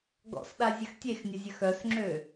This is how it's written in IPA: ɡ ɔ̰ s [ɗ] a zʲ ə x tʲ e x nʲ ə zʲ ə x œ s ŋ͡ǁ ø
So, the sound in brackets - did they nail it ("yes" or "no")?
yes